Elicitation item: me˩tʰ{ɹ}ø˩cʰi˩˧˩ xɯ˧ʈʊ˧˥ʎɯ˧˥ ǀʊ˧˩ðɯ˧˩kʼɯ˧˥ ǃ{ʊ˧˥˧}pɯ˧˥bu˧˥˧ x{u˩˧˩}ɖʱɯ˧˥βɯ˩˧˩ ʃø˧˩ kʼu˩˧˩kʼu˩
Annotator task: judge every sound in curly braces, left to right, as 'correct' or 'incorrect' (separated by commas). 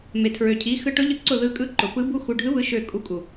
correct, incorrect, correct